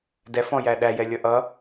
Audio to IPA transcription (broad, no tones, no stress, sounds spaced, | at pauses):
d ɛ f ɔ̃ j æ ɗ æ j ɛ lʲ ʌ ʔ ʌ